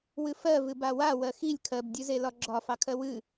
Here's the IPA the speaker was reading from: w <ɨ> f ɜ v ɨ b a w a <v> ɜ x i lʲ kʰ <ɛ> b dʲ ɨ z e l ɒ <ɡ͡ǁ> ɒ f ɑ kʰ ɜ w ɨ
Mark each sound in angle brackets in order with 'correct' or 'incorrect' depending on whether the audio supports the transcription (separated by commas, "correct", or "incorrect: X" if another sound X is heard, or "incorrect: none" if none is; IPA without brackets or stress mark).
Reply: correct, incorrect: w, incorrect: ɜ, correct